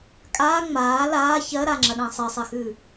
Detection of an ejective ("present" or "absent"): present